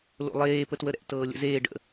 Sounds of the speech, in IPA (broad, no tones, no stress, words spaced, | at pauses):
lo̰lˠeː pətwəɾɛ̰ tɤːlʲə̰zeː ɖə̰